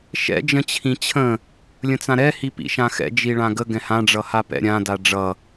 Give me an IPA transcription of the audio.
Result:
ʃ ɛ̰ d͡ʒ ə̃ t͡ɕʰ ĩ t͡ɕʰ ə̃ | lʲ ə̃ t͡s ã ɾ ɛ h i p ḭ ʃ ã x ɛ̰ d͡ʒ i ɭ ã ɡ ə ɡ ɛ̃ h ã ɖ͡ʐ ʌ h a p ɛ̰ ɾʲ ã d a ɖ͡ʐ ʌ

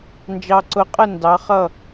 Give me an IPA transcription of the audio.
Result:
n d͡ʒ ɑ˧ ǀ ʊ˨˥ qʼ ə˥˨ n d ɑ˨˥ χ ʌ˥˨

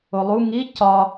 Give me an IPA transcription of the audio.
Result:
o lˠ u ŋ i c ɒ

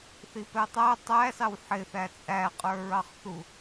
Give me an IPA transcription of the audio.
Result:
θ i p ɛ tˤ æ tˤ æ s ɑ w ħ ɪ θ æ t͡sʼ æ qʼ ə˞ ɹ ɑ χ θ u

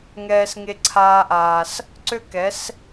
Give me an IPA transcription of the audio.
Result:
ŋ ɛː˦ s ŋ e˦ ǀʰ aː˦ ʔ aː˧ s | ǀ ø˦ k ɛ˨˦ s

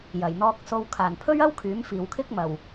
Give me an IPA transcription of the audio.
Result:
j ɐ˨˩ j n̪ ɔː˧ k̚ s o˧ w kʰ aː˨˩ n pʰ ɵ˥ ɥ ɐ˥ w kʰ yː˨˥ m f iː˨ w kʰ ɪ˥ k̚ m ɐ˨˩ w

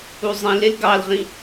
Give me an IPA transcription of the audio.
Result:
u zˤ ĩ l e l ɡ ɑ l ʁ ĩ

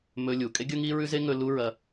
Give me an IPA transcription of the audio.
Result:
m ɵ˧ lʲ u˩ kʼ e˥ ɡʲ ɵ˥ ŋ i˥ ɹ ʉ˥ z e˥ ŋ ɵ˧ l u˥ ɹ ɐ˧

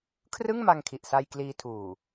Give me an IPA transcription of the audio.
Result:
kʰ r ɯ˥˩ ŋ m a˧ ŋ kʰ i˨˩ ʔ s a˧ j k l iː˧ tʰ uː˨˩

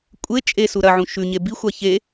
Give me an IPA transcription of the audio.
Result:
kʷʼ e t͡ʃʼ e s u ɾ ɐ ʕ ũ ʃ ʉ ɲ e b i xʷ a ç e

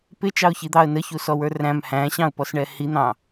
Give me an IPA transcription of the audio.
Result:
p ɪ t͡ʃ ɑ ʊ̯ ç i d̪ ɑ ə̯ n ə ç u s ɔ w ə˞ r æ̃ m h æ̃ ɕ ɑ̃ ʊ̯ p ɔ s ɳ ɛ h i n̪ ɑ̃

